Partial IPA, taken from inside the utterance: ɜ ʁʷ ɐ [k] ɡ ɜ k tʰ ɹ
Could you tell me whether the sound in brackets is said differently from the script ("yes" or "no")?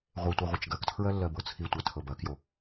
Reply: yes